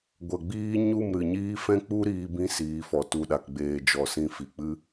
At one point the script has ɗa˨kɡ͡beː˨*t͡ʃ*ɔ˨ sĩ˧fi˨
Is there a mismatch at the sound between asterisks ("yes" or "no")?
yes